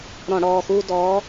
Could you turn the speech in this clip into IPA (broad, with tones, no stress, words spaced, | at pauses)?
ɾɔ̃˧˩˧ɽɔː˩˧˩xuː˦ dɔː˨˥